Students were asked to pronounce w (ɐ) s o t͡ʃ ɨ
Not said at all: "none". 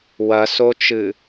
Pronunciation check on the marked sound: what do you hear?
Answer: ɐ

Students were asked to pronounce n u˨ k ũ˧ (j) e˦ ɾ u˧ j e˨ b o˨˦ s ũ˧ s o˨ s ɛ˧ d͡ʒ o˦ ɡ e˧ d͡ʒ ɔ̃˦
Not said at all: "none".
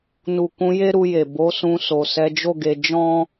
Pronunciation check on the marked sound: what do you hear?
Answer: j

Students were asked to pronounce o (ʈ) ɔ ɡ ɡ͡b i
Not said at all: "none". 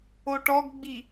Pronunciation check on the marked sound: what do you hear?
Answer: ʈ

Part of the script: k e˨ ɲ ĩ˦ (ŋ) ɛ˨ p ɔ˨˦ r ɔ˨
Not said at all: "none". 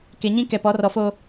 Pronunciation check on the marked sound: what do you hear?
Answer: k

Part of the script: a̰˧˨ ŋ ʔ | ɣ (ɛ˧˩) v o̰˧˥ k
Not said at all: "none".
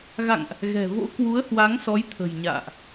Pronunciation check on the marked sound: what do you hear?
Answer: ɛ̤˨˩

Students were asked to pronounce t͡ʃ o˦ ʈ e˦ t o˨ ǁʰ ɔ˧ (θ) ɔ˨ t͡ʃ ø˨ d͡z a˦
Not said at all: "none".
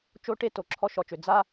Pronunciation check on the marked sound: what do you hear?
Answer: ʃ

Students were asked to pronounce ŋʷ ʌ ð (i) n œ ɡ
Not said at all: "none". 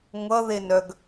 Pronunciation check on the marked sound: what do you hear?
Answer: e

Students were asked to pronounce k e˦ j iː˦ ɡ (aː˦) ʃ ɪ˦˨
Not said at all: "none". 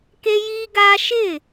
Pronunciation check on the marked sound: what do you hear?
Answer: aː˦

